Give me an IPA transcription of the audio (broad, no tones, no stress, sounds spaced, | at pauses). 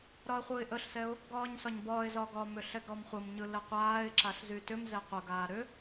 ɾ ɒ ə̯ χʷ ɯː ɪ̯ ʔ ə ɬ s ɛ ʊ̯ | ɡ ɒː ɲ s ɒ ɲ b ɒː ɪ̯ z ɒ ɡ ɒ m ʏ ɬ ɛ ɡ ɾ ɔ m χʷ ə m ɲ ɯ l ə qʷ aː ɪ̯ ǁ a ɬ z y t ʏ m z ɛ qʷ ə ɡ aː ɾ ʏ